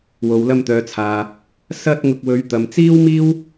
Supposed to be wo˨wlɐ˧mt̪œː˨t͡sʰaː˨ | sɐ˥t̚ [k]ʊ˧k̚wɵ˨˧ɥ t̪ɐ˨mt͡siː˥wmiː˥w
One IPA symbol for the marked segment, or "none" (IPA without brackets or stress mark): ŋ